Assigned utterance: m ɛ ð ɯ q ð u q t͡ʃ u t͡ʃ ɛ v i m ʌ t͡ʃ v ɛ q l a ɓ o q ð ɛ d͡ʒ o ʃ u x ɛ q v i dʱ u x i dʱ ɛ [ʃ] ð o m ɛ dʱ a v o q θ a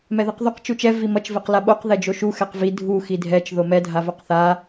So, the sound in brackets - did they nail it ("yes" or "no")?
no